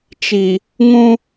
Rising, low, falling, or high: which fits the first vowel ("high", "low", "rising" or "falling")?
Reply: low